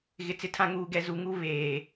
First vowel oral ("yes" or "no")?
yes